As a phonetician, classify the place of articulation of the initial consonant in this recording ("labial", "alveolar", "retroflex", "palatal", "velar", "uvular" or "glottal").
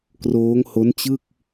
velar